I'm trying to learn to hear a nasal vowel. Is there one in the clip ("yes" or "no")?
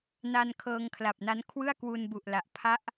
no